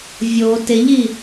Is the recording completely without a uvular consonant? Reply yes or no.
yes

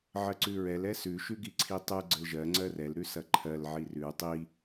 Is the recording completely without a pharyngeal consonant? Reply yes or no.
no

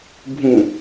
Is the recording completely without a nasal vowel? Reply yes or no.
no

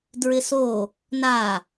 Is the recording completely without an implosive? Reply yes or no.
yes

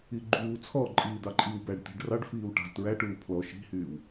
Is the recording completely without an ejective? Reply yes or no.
no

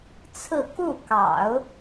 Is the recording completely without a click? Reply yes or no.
yes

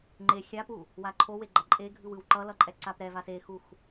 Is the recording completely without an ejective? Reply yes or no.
no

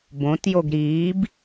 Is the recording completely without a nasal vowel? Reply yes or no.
no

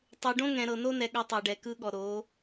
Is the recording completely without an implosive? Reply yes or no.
no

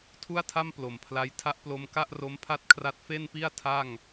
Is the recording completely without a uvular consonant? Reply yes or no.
yes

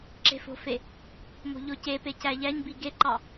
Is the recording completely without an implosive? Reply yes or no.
yes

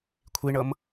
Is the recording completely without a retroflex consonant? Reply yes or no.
no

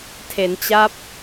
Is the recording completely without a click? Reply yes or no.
yes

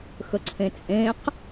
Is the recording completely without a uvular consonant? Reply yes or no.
no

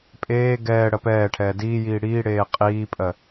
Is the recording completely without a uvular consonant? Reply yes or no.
no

